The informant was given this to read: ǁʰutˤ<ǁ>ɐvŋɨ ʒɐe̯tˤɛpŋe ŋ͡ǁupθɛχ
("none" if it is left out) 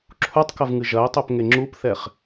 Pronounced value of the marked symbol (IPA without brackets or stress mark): k